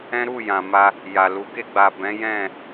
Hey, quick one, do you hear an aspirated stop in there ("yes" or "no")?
no